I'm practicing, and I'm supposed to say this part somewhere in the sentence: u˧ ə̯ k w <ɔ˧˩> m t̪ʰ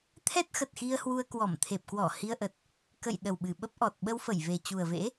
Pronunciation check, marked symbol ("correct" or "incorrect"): correct